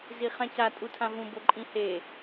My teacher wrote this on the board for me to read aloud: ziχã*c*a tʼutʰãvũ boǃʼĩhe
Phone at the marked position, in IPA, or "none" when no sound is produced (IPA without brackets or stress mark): c